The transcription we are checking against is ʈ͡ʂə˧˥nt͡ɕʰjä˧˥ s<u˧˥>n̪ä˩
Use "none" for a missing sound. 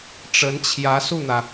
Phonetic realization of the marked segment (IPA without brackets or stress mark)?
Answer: u˥˩